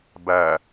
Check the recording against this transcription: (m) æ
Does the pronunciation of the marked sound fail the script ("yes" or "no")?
yes